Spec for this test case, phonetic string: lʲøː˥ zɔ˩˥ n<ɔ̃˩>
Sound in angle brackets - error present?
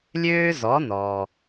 yes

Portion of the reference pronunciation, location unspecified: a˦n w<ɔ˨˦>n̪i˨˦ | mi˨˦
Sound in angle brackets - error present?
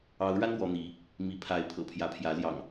no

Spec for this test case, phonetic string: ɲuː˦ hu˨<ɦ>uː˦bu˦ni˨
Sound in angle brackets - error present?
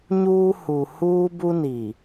yes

